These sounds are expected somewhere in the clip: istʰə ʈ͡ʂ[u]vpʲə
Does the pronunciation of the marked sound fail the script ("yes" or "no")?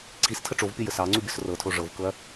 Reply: yes